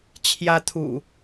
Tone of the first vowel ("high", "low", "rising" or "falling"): high